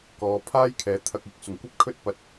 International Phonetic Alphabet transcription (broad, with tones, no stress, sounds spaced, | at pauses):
k ɔː˨˧ pʰ aː˥ j kʰ ɛː˨˥ t̪ʰ ɐ˨ k̚ ɪ˨ k̚ s ʊ˨˩ ŋ kʷ ɐ˥ p̚ kʰ ɵ˥ t̚ p ɐ˧ t̚